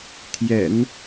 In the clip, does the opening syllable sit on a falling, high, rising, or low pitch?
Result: low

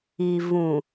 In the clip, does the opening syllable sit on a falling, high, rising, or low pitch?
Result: low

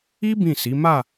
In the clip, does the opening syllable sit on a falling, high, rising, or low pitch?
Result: high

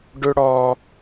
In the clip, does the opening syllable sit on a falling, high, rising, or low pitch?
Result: high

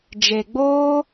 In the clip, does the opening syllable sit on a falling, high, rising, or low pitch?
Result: low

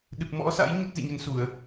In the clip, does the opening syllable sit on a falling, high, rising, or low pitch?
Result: low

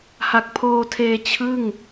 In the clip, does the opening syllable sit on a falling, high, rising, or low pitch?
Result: low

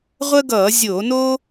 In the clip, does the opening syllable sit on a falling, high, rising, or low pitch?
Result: high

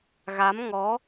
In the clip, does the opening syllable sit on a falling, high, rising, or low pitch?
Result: rising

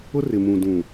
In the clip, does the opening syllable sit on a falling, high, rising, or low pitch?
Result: high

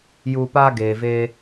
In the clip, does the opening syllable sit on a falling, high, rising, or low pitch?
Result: low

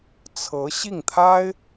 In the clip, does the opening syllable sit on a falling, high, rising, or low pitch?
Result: rising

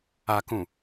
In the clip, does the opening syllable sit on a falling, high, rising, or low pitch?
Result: low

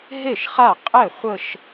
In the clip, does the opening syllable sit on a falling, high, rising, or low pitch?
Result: falling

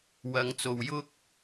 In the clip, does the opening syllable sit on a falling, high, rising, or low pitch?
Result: low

